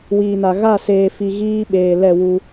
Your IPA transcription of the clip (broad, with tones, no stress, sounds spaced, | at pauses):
w iː˨ n a˨ ɣ a˦˨ s eː˨ f i˨ ɣ iː˦ ɓ eː˨ l ɛ˦˨ w u˦